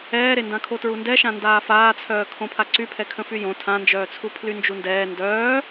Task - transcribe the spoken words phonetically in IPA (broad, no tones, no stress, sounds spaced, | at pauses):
ɛː ɾ e n d ã kʰ o t ɹ u n d ɛ ʃ ã n d aː f aː t͡sʰ œː kʰ õ pʰ a ǀ y pʰ ɛ kʰ ə̃ f y j õ tʰ ã n d͡ʒ œː t͡sʰ u pʰ l y n d͡ʒ u n d ɛː n d œː